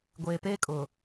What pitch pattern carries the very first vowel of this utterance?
low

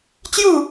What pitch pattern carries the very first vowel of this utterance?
falling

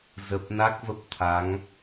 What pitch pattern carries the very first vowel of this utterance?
low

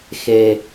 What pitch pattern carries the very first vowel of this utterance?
high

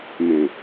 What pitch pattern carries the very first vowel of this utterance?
low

